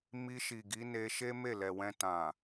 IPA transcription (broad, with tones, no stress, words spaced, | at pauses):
mi˧ʃi˨ɡi˨˦ne˧ ʃe˦ me˦˨lɛ˨wɛ̃˧ tã˨